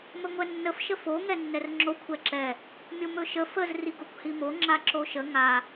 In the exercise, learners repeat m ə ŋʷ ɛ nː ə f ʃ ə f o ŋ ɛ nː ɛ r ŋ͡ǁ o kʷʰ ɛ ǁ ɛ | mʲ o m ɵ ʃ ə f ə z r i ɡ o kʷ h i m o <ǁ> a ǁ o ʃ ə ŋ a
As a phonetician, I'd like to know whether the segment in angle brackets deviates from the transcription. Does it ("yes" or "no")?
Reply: yes